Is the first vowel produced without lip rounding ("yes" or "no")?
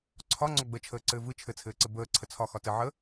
no